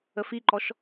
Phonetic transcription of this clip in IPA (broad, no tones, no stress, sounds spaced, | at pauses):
ə f i ǃ ɔ ʃ